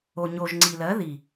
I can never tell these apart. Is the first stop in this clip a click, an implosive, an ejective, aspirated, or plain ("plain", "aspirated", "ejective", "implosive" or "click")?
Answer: click